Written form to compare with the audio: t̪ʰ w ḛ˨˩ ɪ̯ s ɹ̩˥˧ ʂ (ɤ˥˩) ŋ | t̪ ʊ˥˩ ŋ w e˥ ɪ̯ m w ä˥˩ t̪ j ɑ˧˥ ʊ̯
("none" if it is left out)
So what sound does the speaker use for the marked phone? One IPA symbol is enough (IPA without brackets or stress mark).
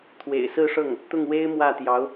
ɤ˥˩